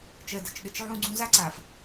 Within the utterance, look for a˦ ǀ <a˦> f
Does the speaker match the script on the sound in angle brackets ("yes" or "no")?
no